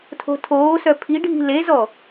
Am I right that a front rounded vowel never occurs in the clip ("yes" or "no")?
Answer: no